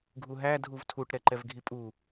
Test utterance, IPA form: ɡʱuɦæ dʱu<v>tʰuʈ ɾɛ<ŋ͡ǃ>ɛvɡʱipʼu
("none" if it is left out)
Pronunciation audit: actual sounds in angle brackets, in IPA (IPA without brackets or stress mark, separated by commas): v, ǃ